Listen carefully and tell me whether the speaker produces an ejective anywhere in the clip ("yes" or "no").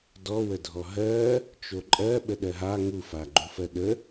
yes